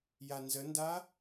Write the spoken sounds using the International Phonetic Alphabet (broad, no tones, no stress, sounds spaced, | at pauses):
j a n z ə n d a